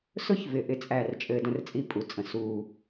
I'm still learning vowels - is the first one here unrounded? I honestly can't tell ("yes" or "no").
no